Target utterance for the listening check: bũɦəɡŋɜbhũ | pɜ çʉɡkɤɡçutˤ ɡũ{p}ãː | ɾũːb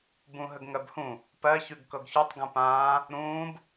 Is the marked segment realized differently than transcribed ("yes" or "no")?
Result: no